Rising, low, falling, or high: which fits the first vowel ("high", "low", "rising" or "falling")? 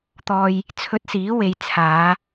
low